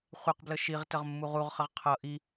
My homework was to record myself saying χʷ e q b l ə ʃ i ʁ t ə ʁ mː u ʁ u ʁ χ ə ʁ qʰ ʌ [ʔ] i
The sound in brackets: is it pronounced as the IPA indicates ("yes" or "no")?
yes